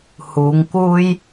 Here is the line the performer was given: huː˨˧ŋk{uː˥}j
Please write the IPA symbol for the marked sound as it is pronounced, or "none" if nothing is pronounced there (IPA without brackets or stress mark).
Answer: uː˥